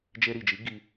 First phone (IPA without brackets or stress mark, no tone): d͡ʒ